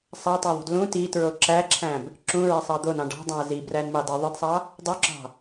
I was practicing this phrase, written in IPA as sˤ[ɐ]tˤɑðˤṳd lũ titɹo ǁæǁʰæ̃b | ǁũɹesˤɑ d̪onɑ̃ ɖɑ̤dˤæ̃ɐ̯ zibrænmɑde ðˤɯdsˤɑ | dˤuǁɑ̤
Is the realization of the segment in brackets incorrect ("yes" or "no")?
yes